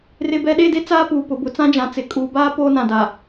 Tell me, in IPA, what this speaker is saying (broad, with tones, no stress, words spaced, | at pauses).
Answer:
rɪ˨bɛ˨ɗe˦˨de˦ t͡saː˦puː˨pʊ˨bʊ˨˦ t͡sã˦d͡ʒã˨ t͡sɪ˨kʼuː˨baː˦ poː˦nã˨da˨